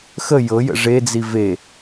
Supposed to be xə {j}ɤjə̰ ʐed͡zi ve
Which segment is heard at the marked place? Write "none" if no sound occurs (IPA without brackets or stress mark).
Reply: j